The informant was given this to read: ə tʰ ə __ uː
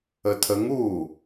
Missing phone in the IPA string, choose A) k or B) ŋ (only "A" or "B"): B